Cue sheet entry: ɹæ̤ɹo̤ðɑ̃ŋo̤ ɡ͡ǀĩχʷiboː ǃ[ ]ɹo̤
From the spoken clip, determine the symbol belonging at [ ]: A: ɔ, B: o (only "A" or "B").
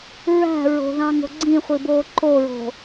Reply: B